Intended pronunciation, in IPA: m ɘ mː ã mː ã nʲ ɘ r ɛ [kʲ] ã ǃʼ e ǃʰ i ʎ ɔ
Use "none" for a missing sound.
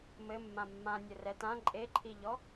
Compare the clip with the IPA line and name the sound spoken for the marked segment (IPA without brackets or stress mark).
t